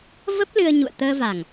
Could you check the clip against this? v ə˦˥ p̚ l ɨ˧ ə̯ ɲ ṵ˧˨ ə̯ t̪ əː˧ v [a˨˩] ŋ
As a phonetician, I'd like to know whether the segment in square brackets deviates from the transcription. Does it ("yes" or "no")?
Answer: no